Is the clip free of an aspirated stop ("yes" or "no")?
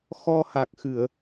yes